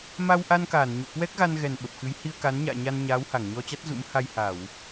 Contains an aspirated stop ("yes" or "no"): no